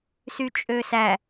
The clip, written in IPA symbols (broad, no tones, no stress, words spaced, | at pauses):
syt͡ʃʼøsæ